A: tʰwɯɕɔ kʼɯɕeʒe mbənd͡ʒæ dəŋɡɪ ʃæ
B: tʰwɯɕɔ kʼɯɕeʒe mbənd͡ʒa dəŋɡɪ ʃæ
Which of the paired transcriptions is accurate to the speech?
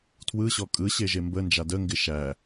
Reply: B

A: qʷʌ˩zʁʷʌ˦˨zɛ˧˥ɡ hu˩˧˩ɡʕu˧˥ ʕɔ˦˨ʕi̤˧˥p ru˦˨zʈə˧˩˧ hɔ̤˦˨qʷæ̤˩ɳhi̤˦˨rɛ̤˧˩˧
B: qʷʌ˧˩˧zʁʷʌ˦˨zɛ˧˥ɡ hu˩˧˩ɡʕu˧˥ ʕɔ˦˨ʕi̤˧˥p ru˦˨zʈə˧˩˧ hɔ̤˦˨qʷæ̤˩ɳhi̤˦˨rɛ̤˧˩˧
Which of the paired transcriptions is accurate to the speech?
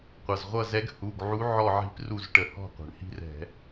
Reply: A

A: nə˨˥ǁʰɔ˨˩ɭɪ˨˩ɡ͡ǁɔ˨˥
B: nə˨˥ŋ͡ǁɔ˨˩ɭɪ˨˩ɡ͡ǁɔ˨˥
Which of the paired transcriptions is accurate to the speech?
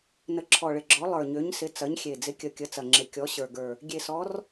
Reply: A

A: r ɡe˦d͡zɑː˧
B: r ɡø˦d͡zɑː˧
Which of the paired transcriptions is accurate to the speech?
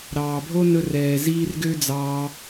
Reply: B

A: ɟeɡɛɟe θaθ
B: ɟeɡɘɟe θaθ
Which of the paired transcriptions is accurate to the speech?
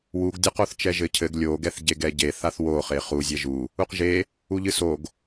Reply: A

